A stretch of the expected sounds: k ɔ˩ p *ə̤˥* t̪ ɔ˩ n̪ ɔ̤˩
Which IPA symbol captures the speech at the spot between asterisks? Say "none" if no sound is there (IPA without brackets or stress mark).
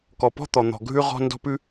ɔ̤˥